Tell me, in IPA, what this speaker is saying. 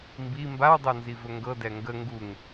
mbi mbawdˤonzivɵ ŋɡɤdɛ ŋɡə ŋɡuŋ

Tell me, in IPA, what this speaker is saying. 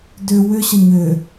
dʏ wʏɕə ɲʏ

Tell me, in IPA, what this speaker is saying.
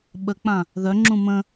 ɓək͡pã | ðœŋ͡ǁũ mə̃

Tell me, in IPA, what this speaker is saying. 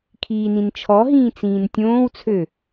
kʰiːnĩnt͡ʃʰɔɦĩː t͡sĩːntʲõːwt͡sʰø

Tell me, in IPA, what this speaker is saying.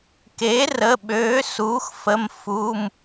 ke˩˥rə˩˧˩ ɓøː˩˥suː˩˥xfə˩˧˩mfu˩˧˩m

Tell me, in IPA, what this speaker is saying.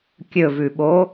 kʲɵvʉɓo

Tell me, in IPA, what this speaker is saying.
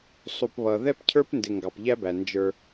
sˤu˨pβʌ˨ ðɛ˦pcʰə˞˦pndɪ˨ ŋɡɑ˨pʎæ˦bæ˨ nd͡ʒə˞˦

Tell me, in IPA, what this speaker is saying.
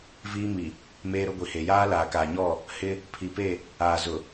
viː˦mi˨ | meː˦ɾʊ˦ɡʷi˨he˨ jaː˦laː˨kaː˨ɲɔ˦˨ | hɪ˦ | pʰi˨pe˦˨ | aː˨zʊ˨

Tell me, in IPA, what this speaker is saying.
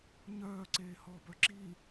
ɲœː ǀeːhɔ bœǁi

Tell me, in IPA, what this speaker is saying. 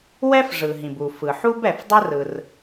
wɛ˥fʐɯ˩ɦĩ˩bu˩ fɯ˩ħu˥b ɛ˩f dˤɯ˥rɯ˩r

